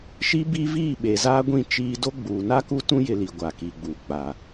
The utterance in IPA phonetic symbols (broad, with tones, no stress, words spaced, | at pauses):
ʃi˦bi˦viː˦˨ ɓe˨zaː˦ɡʷĩ˦˨ t͡ʃiː˦ do˦ ɡ͡buː˨ na˦ku˦tũ˦ jɪ˦li˨ ɡʷaː˨kiː˨ɡ͡buː˨ k͡pa˨